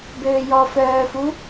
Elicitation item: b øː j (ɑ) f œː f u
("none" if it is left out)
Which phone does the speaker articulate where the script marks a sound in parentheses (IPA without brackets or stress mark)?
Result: ɔ